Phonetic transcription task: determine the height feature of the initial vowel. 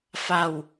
low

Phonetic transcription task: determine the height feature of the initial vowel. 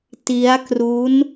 high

